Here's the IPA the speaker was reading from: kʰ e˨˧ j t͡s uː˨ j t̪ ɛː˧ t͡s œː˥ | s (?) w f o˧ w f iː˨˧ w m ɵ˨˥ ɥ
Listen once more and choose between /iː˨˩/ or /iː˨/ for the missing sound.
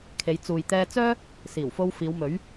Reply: iː˨˩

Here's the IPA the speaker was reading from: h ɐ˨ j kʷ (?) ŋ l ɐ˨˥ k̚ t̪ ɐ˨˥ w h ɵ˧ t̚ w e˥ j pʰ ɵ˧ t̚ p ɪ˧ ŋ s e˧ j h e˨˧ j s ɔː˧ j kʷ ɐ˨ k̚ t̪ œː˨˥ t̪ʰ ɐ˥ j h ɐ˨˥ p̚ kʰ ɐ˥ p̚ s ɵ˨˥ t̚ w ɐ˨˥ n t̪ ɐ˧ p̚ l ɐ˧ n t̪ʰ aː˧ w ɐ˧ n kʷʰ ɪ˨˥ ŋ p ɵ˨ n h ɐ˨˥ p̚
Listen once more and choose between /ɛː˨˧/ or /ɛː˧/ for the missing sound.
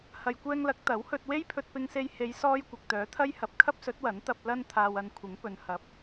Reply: ɛː˧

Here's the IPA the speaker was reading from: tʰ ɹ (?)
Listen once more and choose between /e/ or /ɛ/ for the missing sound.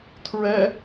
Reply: ɛ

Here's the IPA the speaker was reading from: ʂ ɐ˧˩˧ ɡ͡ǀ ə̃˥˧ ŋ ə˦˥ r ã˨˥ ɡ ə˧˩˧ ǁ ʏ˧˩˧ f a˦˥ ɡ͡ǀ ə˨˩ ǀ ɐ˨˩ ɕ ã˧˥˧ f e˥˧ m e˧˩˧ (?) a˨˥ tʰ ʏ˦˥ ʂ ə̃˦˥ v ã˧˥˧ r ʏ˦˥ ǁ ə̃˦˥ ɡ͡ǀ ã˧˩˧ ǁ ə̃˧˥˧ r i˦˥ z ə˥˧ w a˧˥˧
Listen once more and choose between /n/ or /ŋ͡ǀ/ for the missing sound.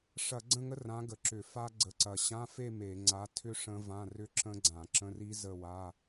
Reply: ŋ͡ǀ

